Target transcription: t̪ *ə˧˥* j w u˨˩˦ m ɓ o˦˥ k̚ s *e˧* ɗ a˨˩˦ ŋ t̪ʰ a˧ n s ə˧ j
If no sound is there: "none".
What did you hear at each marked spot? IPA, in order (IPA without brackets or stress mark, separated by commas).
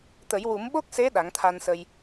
ə˨˩˦, e˧˥